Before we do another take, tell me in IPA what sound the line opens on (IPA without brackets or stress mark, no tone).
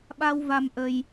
ɓ